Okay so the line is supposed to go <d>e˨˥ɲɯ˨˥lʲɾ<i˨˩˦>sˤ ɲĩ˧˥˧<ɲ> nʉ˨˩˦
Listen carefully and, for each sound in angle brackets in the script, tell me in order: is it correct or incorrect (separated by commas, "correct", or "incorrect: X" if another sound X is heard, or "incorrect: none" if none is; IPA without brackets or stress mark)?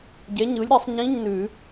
incorrect: ɟ, correct, correct